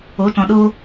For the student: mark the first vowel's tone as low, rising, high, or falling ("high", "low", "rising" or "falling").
rising